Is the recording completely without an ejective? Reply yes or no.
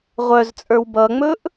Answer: no